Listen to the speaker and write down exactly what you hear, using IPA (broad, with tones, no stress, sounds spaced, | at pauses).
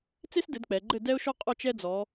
t͡s e˦ s d ɘ˩˧ d k͡p ɛ˩˧ ɡ͡ǃ ɘ˥˨ d ɛ˦ ʊ̯ ʃ ɔ˦ qʼ ɔ˦ t͡ʃ ɛ˦ d͡z ɔ˩˧